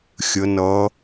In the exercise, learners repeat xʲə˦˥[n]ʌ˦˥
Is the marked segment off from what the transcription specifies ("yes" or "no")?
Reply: no